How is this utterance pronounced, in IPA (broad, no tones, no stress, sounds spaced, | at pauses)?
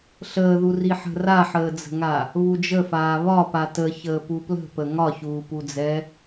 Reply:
ɬ əː ð u r i ħ ə̤ r a ħ əː d͡z ə̤ ŋ a | β u d͡ʒ ə f aː β ɒ p a t ə ç əː p u p l ə̤ p ə ŋ ɒ ç uː p u d͡z ɛ